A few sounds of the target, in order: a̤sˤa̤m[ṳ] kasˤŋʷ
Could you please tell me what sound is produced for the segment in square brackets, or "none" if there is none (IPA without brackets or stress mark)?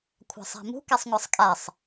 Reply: ṳ